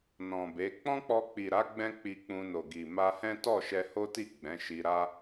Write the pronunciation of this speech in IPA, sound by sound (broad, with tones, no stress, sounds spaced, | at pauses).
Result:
n ɔ̃˨ b e˨˦ k͡p ɔ̃˦ k͡p ɔ˧ k͡p i˨ ɾ a˨˦ ɡ͡b ɛ̃˦ k͡p i˧ k͡p ũ˧ n o˨ ɡ i˨ m a˧ h ɛ̃˦ t ɔ˦˨ ʃ ɛ˧ h o˦ t i˦˨ ɡ͡b ɛ̃˨˦ ʃ i˧ ɾ a˦